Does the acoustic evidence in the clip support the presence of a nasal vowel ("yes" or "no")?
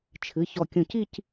yes